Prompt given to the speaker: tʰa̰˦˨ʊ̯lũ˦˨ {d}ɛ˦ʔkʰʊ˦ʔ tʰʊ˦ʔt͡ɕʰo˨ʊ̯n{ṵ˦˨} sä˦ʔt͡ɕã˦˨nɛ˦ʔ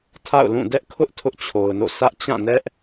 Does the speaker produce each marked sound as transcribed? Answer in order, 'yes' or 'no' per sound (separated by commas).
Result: yes, no